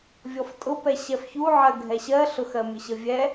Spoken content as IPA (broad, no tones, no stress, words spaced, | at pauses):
vʲɔftʼʊpɛ ɕɛfçuʕɜ ɡʱɛɕɜɬʊx ɜmʲʊɕəvʲɛ